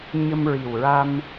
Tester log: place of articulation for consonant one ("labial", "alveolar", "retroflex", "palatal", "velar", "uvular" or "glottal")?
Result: palatal